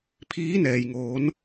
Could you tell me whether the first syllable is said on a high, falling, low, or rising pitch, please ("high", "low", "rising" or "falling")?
rising